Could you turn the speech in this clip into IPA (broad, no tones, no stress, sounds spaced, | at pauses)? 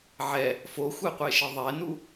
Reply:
ʕ ɛ | f o xʷ e qʷ e ʃ e ðˤ ɛ n u